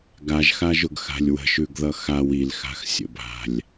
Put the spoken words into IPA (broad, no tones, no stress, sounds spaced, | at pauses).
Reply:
ɡ a ʒ x a ʒ ʊ ɡ x a̤ lʲ w ə̤ ʃ ʉ ɡ ð ʌ x a w i l x a̤ x sʲ ə̰ bʱ a̤ lʲ